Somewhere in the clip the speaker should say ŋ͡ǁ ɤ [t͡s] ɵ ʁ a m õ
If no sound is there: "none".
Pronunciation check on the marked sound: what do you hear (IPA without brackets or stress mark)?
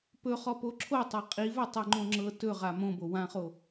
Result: t